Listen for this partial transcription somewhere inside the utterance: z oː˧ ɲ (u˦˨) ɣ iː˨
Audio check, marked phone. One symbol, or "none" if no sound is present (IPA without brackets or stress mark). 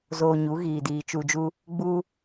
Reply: u˨˦